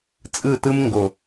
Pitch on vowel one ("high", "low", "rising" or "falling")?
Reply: falling